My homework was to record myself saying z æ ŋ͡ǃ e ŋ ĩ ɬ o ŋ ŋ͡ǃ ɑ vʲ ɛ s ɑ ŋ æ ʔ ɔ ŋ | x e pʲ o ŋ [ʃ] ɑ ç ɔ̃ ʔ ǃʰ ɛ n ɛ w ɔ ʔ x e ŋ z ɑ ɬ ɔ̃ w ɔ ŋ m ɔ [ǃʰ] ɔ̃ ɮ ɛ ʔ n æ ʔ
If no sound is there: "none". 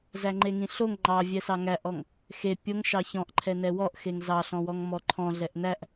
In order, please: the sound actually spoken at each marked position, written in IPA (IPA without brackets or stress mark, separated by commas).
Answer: ʃ, ǃʰ